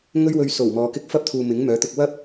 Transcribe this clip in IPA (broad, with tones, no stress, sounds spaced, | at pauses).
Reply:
ŋ ɵ˥ ɥ w ɵ˧ ɥ s o˨˩ w m ɔː˨˧ k ɪ˥ k̚ f ɐ˥ p̚ t̪ʰ uː˨ m ɪ˨˥ ŋ m œː˨˥ t̪ ʊ˧ k̚ w ɐ˥ p̚